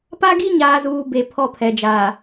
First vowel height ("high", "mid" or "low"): low